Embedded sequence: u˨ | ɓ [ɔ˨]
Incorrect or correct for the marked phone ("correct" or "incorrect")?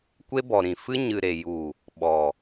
correct